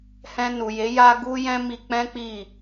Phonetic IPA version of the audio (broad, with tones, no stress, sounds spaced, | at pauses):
h ɛ̃˧ n u˨ j e˨˦ j a˦ ɡ u˦ j ɛ̃˦ m i˧ k͡p ɛ̃˦ k͡p i˦˨